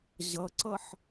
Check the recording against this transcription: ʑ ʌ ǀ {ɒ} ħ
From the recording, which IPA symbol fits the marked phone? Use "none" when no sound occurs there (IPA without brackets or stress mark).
ʌ